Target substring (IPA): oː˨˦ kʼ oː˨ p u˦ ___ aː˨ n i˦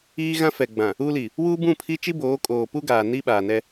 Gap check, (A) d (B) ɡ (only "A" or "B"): B